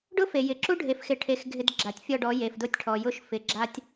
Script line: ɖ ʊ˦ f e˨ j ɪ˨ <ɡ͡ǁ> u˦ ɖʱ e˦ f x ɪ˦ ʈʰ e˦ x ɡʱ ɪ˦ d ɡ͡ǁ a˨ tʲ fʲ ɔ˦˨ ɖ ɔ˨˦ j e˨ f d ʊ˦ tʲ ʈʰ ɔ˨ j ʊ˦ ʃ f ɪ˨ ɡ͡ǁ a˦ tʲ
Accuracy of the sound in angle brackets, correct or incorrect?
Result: incorrect: ǁ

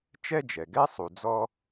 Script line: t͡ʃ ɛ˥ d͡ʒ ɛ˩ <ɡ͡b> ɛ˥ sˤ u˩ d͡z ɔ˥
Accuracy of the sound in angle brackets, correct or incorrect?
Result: incorrect: ɡ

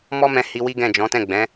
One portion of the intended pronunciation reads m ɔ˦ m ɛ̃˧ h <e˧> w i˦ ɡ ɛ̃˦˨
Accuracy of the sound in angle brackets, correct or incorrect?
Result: incorrect: i˧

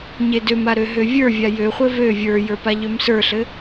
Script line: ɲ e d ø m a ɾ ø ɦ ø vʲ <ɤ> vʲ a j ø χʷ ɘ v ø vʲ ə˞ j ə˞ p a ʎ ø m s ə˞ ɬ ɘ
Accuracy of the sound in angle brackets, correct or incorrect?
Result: incorrect: ə˞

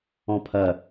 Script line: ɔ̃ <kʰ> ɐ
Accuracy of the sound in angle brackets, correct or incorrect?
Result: incorrect: pʰ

